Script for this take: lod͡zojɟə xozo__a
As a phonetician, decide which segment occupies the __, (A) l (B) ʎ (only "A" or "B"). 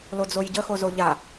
B